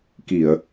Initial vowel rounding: unrounded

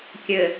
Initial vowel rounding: unrounded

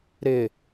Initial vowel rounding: unrounded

